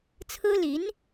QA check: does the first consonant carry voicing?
no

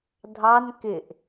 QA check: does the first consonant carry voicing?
yes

